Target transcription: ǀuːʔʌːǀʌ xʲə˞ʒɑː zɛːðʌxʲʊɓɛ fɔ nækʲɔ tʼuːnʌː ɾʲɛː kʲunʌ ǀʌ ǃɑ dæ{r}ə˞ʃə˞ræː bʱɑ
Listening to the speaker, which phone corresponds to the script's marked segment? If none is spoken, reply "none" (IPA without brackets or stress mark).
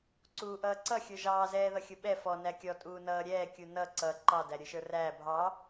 ɾʲ